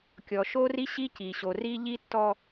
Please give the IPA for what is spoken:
kʲ ɔ˨ ʃ o˦ r i˦ ɕ i˦ c i˨ ɕ o˨ r i˦ ʎ i˦ tː ɔ˦

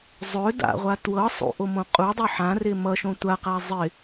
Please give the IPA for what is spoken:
zˤ ɵ d a̰ ʁʷ a t w ɤ sˤ ṵ ʔ o m õ qʼ u dˤ o ħ ã r ɪ m ʌ ʃ õ tʷ a q a zˤ ɪ

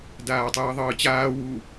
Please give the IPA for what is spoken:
d aː tˤ ɯː ðˤ ɯː t͡ɕ aː w u

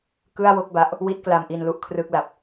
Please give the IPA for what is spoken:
k ɯ˥˩ a̯ w o˥˩ k̚ b a˦˥ ʔ | w i˦˥ t̚ k l a˧ m ʔ i˧ n l u˦˥ ʔ kʰ r ɯː˦˥ k̚ l a˨˩ p̚

